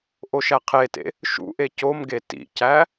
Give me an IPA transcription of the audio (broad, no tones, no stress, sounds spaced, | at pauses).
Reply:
ʔ o ʃ æ qʰ e t ḛ | ʃ ṵ ʔ e c o m ɡ e t ḭ c æ